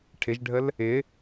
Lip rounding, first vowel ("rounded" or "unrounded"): unrounded